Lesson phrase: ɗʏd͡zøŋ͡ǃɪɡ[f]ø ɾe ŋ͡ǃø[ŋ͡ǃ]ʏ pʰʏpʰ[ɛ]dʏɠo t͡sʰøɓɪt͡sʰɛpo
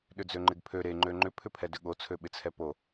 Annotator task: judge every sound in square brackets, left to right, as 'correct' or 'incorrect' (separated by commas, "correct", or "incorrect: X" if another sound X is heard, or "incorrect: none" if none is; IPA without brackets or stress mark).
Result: incorrect: pʰ, correct, correct